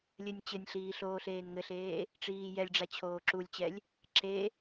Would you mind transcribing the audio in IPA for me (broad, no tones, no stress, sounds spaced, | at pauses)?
lʲ ɘ nʲ t͡ɕ ɘ nʲ ɬ iː ɬ oː ɬ eː n ŋ ɘ ɬ eː | ʈ͡ʂ iː j ɛ lʲ ɖ͡ʐ a t͡ɕʰ oː ǁ u lʲ t͡ɕ ɛ lʲ | ǁ e